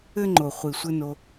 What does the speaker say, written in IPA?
ɘ˦ ŋ͡ǃ o˨ χʷ i˨ sʷ ɘ˦ n o˧

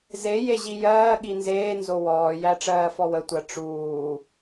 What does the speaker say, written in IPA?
z e j e ʑ i j ɜː ɠ i n z eː n z o w ɔː j æ ʈ͡ʂ ɜː f ɔ w ə tʷ ɜ ʈ͡ʂ uː

